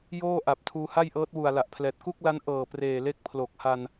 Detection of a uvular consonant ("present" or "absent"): absent